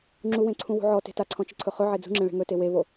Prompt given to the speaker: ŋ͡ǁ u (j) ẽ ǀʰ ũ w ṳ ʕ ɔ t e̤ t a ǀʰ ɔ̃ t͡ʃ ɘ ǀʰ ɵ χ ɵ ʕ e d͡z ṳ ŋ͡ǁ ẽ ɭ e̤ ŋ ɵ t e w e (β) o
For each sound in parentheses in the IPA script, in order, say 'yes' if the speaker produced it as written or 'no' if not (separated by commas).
no, yes